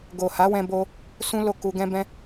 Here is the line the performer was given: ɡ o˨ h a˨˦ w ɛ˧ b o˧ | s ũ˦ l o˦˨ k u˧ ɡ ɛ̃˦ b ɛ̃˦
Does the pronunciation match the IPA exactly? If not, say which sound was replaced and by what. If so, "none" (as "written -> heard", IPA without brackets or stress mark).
ɛ˧ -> ɛ̃˧